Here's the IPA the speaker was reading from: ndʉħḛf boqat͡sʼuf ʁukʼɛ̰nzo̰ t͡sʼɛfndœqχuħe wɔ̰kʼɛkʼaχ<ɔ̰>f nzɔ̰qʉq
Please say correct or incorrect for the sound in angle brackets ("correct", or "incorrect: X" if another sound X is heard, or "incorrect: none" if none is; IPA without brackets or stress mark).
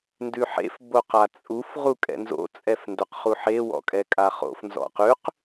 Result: incorrect: o̰